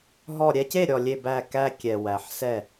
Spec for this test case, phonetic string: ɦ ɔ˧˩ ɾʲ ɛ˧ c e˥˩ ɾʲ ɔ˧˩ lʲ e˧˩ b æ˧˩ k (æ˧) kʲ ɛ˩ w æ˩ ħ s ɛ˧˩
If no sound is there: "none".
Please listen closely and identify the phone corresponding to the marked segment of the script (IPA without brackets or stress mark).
æ˧